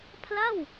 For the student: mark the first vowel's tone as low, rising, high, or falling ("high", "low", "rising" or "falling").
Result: falling